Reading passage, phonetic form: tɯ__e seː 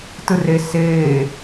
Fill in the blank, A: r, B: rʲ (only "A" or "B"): A